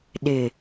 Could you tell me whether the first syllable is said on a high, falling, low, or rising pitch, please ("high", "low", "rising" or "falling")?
low